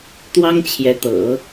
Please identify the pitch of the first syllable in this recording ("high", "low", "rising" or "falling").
high